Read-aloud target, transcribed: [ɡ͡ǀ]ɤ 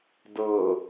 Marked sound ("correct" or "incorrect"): incorrect